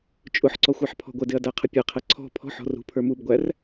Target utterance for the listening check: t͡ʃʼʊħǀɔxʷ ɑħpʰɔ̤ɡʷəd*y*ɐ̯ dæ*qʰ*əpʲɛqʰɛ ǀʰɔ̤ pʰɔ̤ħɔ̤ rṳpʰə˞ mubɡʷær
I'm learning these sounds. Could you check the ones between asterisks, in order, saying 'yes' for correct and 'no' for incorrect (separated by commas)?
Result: no, yes